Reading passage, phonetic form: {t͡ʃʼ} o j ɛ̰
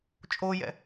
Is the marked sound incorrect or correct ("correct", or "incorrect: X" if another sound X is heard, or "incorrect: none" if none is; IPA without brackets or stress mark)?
correct